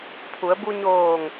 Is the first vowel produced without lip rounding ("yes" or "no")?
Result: no